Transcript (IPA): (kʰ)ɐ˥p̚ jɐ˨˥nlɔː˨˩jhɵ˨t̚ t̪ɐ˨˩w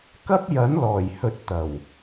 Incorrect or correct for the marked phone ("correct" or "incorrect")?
incorrect